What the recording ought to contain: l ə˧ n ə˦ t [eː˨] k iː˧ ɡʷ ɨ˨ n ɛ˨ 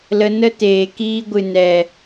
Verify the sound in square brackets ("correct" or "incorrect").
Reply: correct